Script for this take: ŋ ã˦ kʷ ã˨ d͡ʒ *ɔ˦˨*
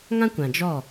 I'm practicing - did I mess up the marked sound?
no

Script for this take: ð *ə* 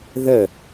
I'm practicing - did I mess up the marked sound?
no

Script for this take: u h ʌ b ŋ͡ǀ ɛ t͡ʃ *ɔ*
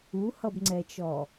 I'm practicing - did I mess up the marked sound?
no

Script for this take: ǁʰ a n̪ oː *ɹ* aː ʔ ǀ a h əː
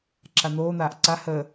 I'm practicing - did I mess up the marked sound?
yes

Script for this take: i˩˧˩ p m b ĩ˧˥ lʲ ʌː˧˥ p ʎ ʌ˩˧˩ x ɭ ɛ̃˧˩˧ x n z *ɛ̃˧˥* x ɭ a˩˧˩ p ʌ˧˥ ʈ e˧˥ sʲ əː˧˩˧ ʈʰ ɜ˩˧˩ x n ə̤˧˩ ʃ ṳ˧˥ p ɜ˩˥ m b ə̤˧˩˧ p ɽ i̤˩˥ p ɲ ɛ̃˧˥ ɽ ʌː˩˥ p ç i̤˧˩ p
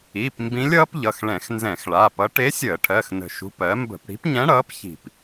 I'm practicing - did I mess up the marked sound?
yes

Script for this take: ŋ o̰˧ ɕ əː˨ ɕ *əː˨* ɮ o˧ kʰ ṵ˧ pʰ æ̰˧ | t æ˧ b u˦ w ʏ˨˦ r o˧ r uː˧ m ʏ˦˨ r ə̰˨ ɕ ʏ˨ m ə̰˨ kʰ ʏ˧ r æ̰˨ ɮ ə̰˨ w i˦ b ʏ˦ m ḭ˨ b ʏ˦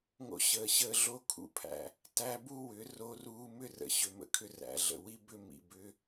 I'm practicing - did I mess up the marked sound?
yes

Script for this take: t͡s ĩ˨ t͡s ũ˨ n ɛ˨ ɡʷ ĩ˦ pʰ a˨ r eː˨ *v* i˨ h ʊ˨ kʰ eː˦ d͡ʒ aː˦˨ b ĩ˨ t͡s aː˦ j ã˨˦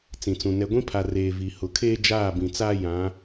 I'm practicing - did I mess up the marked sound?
no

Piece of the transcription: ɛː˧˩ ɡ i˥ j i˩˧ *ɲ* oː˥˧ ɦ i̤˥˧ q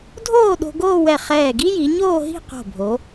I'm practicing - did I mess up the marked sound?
no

